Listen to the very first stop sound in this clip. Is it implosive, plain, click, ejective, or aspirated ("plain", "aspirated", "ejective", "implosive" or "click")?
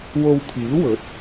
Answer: aspirated